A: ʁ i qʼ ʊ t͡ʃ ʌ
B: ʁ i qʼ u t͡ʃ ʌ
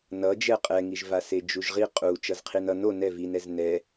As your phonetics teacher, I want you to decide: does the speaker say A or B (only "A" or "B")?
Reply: B